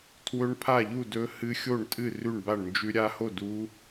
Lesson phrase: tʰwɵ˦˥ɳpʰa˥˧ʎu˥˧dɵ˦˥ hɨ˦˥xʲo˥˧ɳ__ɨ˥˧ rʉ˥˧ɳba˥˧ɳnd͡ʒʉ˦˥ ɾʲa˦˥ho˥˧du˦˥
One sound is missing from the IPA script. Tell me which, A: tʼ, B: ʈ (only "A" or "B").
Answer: A